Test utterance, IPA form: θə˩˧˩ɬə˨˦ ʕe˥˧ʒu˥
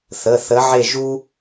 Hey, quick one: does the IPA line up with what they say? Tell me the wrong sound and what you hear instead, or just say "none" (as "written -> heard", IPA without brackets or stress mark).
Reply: ɬ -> θ